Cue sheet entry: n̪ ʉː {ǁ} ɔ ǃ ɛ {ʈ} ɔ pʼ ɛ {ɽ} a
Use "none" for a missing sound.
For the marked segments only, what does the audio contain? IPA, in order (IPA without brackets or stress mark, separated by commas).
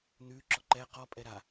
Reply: ǁ, q, ɾ